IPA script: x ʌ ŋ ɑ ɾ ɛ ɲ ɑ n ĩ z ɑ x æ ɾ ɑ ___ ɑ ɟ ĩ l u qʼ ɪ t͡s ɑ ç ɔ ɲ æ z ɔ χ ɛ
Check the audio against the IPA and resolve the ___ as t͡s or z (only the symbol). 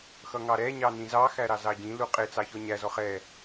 z